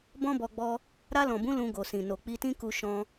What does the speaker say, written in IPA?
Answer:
bɔ̃˦bɔ˧ɡ͡bɔ˧ | ɾa˧lɔ̃˨bũ˨˦ lũ˧ ɡo˨sĩ˨ no˨k͡pi˧tĩ˦ ku˦ʃɔ̃˦

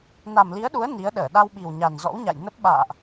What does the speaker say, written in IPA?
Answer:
na˨˩mli˨˦ə̯ɗu˨˦ə̯ ni˨˦ə̯ɗəː˧˩ ɗa˧wɓi˨˩wɲa˨˩nzɔ̰˧˥w ɲa̰˧˨j nə˦˥p̚ ɓa̰ː˧˨ʔ

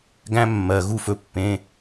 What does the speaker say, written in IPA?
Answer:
ɡæ̃˦˥ mːɜ˩ ɣu˧˩fɵ˩˧˩pːẽ˩˧˩

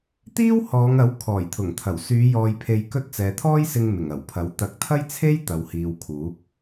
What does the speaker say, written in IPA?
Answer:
t̪iː˥whɔː˨˧ŋɐ˨˥w kʰɔː˨˩jt̪ʰʊ˨˩ŋt̪ʰɐ˨˩w syː˨˧ jɔː˧jpʰe˧jkɵ˥t̚ t͡sɛː˨t̪ʰɔː˥jsɪ˧ŋ mɪ˨˩ŋɐ˨˩wpʰɐ˨˥w t̪ɐ˨˥k̚t̪ʰɐ˥jt͡sʰe˥j t̪ɐ˨˧whiː˨wkʰuː˨˥k̚

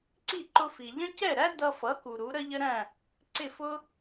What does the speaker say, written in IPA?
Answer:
ǀi˥˩ ǃʊ˧fi˩ʎə̃˥ cɛ˥˩ɾæ˥ dʌ˧fʌ˩˥ ku˩ɾu˩˥ ɾə˥ʎə˥ɾæ̃˥˩ | ǀɪ˥˩fʊ˥

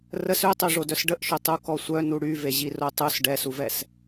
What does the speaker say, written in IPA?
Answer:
rəs øtˤø ʐodœsɖəʔʃœ tˤukɔsʷœ nuɽyveʑi rotˤus ɖɛsuvɛs

